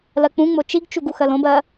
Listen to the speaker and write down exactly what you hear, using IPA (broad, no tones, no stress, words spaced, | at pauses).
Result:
lɜk͡pũŋ͡mo t͡ʃiɡt͡ʃuɡ uxɜlõbɜ